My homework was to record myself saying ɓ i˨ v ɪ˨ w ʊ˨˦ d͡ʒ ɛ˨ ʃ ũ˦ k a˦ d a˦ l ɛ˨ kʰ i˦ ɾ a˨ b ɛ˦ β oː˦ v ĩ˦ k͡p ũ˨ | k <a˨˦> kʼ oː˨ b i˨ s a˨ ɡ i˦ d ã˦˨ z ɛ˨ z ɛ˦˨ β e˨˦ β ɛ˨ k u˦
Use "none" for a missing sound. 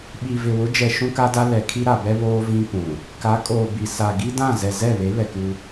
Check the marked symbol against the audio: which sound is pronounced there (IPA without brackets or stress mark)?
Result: a˨˦